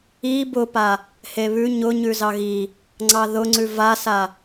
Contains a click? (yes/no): yes